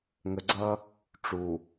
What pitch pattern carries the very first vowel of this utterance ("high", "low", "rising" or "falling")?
low